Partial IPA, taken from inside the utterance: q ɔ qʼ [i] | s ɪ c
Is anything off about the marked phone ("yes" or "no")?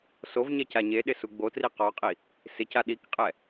no